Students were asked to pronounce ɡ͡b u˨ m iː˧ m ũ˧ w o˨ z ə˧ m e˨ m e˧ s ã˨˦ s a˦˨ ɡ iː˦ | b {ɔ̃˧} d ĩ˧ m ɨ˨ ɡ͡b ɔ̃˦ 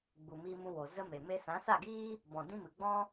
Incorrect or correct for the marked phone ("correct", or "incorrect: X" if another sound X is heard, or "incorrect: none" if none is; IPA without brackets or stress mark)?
incorrect: ɔ̃˨